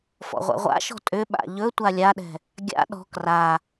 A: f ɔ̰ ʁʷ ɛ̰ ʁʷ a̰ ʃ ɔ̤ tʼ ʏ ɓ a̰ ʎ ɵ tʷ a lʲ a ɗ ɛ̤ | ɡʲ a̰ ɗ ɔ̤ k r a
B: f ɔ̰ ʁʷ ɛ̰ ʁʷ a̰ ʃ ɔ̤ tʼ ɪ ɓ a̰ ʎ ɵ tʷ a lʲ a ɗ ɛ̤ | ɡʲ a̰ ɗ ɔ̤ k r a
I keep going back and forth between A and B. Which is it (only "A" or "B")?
A